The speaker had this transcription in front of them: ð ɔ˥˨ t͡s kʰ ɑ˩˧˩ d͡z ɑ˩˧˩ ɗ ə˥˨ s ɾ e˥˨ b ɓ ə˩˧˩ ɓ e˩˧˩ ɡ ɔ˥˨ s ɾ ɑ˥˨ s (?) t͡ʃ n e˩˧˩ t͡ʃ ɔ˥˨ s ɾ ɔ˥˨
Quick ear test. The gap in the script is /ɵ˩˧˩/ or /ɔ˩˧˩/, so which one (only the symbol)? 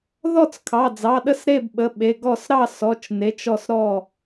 ɔ˩˧˩